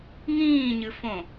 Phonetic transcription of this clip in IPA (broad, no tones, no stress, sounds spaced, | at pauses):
ŋ ĩː ɲ ɨ f õ